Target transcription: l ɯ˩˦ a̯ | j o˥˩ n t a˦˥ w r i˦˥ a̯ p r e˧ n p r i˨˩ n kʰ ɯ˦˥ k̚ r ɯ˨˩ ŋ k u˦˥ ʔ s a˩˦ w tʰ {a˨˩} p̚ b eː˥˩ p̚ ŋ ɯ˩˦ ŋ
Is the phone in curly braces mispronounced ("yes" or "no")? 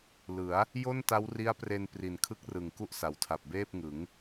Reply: no